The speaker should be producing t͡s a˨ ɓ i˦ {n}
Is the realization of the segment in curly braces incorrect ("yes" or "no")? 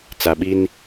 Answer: no